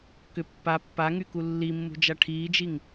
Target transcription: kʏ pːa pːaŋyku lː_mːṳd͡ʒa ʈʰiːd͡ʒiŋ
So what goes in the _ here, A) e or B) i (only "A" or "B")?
B